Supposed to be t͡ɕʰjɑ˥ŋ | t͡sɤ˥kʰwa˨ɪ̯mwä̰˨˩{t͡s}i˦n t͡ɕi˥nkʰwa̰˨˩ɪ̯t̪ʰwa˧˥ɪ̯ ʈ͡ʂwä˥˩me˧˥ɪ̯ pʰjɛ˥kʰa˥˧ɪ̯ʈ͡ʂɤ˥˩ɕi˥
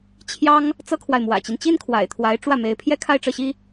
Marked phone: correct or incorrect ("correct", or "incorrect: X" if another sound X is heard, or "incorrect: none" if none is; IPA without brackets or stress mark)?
incorrect: t͡ɕ